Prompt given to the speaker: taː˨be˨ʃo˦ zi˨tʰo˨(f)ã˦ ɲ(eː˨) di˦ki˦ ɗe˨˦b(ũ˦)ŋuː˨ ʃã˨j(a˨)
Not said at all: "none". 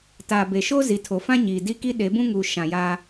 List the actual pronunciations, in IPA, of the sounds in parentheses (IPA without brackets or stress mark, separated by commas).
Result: f, iː˨, ũ˦, a˦